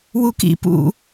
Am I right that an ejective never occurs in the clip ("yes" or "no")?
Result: yes